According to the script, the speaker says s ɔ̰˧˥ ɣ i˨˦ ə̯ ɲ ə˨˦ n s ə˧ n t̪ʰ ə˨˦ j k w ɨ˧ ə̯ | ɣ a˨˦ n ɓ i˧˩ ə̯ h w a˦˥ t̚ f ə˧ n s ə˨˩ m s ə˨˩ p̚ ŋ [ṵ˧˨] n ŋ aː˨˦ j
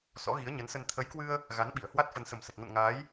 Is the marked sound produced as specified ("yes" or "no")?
no